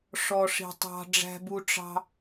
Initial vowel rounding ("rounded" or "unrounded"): rounded